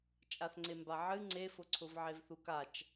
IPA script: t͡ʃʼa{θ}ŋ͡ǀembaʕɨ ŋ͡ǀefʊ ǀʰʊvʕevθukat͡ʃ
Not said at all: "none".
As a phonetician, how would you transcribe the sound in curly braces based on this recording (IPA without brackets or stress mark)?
θ